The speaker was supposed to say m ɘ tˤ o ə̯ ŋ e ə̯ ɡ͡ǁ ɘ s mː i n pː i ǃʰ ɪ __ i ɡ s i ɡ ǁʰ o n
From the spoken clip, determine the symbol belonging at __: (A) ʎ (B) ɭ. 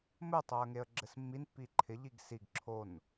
A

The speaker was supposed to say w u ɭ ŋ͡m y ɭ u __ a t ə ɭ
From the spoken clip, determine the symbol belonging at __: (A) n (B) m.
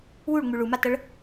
B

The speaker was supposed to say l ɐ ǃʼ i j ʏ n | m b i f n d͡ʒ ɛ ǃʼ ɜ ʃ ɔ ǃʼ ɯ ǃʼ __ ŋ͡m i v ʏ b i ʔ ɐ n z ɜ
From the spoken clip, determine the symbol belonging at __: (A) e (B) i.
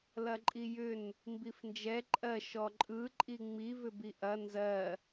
B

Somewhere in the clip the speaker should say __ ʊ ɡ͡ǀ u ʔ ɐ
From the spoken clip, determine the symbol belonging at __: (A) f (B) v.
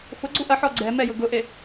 A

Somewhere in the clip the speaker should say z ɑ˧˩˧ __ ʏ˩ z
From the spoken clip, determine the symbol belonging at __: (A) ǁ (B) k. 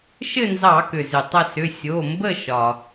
B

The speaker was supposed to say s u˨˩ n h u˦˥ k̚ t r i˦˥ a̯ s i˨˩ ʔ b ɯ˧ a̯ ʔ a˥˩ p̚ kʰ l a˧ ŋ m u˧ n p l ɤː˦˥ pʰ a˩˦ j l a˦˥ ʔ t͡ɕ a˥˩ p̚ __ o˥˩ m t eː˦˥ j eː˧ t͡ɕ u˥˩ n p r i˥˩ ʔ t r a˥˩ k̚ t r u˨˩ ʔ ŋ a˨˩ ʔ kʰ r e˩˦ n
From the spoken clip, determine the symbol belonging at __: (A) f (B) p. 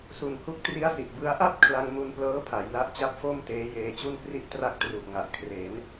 A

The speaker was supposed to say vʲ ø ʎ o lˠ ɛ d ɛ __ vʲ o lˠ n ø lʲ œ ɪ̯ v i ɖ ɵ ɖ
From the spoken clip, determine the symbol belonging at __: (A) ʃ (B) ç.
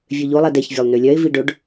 B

